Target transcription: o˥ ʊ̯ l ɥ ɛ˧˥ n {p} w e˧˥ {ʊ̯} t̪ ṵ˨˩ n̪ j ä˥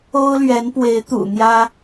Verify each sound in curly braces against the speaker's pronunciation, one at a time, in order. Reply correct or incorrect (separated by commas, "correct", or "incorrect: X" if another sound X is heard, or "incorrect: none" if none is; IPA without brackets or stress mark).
correct, incorrect: ɪ̯